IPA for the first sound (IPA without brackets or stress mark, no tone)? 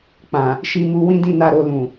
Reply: k͡p